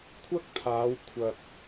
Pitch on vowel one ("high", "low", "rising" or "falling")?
high